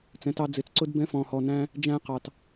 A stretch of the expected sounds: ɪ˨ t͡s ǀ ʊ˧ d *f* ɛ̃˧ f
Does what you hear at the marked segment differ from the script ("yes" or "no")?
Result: yes